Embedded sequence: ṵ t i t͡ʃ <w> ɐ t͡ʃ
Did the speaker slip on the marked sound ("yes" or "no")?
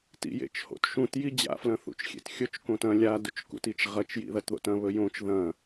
yes